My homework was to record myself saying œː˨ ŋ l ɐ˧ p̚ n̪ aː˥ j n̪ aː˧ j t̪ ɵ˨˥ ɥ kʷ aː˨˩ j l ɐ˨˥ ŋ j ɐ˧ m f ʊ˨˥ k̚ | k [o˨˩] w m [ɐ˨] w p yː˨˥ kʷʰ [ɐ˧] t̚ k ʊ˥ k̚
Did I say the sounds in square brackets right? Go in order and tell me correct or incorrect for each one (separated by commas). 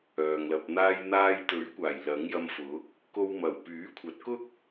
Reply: incorrect, incorrect, incorrect